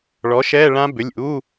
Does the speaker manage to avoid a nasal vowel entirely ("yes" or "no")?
no